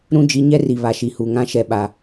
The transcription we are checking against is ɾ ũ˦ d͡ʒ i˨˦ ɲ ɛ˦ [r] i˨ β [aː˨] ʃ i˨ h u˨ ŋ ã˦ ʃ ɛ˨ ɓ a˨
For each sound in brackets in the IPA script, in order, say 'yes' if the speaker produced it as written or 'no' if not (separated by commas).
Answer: yes, no